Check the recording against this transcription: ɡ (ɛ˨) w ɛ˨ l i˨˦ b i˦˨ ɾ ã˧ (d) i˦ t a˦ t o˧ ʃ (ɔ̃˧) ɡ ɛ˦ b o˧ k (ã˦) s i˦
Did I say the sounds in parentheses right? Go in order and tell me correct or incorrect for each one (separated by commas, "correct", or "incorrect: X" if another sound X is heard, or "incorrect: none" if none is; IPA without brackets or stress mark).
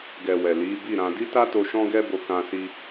correct, correct, incorrect: ɔ̃˦, correct